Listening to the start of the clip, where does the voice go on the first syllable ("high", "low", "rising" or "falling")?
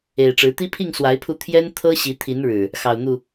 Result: low